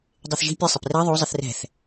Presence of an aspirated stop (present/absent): absent